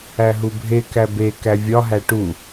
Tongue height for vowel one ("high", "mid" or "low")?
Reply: low